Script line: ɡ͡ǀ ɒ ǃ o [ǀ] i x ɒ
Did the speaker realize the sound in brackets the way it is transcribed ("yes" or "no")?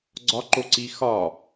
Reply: yes